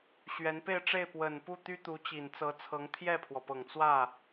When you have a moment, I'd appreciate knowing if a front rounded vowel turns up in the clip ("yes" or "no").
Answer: yes